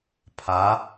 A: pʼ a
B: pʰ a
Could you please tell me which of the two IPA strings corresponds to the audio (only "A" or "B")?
B